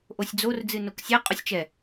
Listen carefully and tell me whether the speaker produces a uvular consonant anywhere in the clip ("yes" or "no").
yes